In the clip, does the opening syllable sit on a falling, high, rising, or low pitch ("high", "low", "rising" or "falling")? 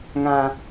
high